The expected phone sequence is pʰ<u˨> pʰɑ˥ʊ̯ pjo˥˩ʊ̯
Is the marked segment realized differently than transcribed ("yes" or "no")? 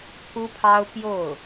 yes